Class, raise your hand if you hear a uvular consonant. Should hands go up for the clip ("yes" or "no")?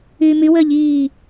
no